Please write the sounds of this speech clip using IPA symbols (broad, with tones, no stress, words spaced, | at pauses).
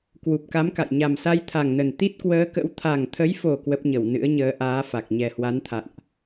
kwu˨˩p̚ka˨˦mka̰˧˨j ɲa˨˩msa˧jt̪ʰa˨˩ŋnə˨˩n t̪i˦˥t̚kwəː˨˦kə̰˧˥w t̪ʰa˨˩ŋt̪ʰə˨˦jfo˨˩ kwə˦˥p̚ɲə˧˩w nɨ̰˧˥ə̯ɲəː˨˦ʔaː˨˦fa˨˩k̚ ɲɛ˨˩hwa˨˦nt̪ʰa̰˧˨nʔ